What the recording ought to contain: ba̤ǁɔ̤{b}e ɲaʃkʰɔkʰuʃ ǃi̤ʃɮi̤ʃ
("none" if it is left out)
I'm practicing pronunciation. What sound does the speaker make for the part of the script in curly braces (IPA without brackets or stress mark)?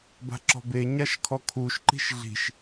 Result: b